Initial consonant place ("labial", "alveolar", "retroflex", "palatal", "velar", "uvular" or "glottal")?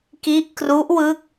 velar